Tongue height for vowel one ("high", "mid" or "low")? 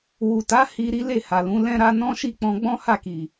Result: high